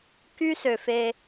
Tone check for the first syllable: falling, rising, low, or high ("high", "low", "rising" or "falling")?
high